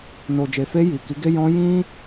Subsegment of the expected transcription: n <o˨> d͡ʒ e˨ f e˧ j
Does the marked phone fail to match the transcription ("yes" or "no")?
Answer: no